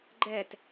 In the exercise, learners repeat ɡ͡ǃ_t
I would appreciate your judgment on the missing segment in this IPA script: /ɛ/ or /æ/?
ɛ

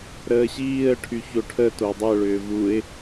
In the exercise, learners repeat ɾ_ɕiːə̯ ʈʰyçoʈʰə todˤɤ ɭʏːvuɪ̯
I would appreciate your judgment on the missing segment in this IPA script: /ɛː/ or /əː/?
əː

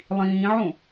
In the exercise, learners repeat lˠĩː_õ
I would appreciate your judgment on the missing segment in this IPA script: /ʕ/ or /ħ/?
ʕ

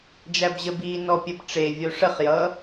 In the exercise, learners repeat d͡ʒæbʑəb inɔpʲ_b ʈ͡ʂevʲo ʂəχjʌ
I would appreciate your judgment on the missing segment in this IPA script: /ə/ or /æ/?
ə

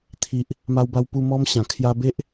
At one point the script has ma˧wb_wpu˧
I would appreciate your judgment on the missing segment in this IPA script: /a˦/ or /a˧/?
a˧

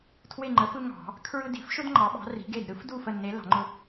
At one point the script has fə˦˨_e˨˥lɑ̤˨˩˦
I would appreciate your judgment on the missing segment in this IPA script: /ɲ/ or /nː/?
nː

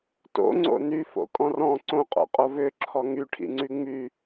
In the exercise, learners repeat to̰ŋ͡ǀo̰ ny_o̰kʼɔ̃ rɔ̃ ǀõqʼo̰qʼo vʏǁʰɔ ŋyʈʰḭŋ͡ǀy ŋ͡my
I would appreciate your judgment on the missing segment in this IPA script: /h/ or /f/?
f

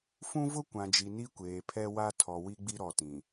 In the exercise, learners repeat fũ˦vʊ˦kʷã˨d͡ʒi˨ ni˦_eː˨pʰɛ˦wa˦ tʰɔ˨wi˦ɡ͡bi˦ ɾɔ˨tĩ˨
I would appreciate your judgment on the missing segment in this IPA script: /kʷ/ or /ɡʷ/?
kʷ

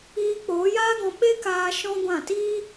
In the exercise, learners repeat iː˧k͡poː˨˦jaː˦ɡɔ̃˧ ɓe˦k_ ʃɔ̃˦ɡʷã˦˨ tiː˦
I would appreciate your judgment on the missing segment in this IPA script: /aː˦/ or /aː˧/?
aː˧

